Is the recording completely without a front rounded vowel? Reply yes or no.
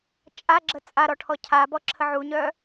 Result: no